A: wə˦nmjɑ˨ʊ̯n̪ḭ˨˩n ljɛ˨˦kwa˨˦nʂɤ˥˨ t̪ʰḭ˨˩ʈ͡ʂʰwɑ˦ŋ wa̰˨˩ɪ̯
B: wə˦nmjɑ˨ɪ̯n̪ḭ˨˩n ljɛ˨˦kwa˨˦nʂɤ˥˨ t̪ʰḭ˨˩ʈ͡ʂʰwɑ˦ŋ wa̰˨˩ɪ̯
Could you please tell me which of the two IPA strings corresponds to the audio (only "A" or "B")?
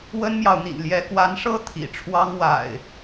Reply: A